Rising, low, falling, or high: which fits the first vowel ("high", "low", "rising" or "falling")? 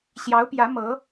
rising